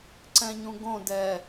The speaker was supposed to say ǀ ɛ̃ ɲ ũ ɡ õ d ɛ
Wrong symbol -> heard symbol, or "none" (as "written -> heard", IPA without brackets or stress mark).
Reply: none